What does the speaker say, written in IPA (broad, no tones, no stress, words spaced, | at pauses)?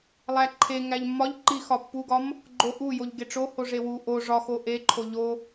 lˠæǃʰe ŋæʎmːɒʎ ǃixɒpːuɡɒm | ɡ͡ǃoʔu joʎɡeʈ͡ʂo hoʐewu ʔo ʐɒxo ʔeǃʰo ʎo